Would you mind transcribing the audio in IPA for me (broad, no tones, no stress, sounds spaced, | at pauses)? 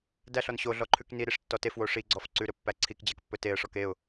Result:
d æ ɬ ɔ n ɕ o ɮ ɔ ǃʰ ʉ k n i ɾ i ʂ tː ɔ t e f w o ʂ i ɡ͡ǀ ɔ f ǀ ʉ ɾ ɵ pː æ ǀʰ i k d͡ʑ ɛ k pː ɵ t e ə̯ ʂ ɔ k e ʊ̯